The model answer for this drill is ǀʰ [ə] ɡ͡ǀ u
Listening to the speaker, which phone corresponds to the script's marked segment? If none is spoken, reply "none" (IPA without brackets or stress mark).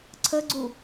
ə